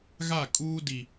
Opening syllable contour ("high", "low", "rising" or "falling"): falling